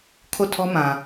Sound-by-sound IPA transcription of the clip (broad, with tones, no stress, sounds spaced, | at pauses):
kʰ o˦˨ tʰ ɔ˦ m ã˨